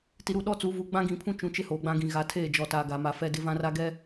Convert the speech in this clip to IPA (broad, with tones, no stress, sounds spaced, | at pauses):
t i˨ ɾ u˨ ɗ ɔ˦ t͡s u˨˦ v u˨ ɡ͡b ã˦ ɡ ĩ˨ pʰ ũ˦ t͡ʃ ũ˨˦ t͡ʃ ɪ˦ h oː˨ ɡ͡b ã˦ ɡ ĩ˨ ɣ a˨ tʰ eː˦˨ d͡ʒ ɔ˨ t a˨ ɡ a˨ m a˨ f ɛ˦ d ɪ˦ v ã˦ r a˦ ɡ ɛ˦